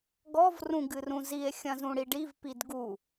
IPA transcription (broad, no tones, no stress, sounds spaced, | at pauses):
ɡ ɔ v r ũ ɡ ɨ r ũ z i e̯ xʲ ɐ̃ z ũ ɽ i ɖ i v p i d ɡ u